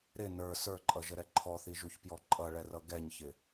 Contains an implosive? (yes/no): no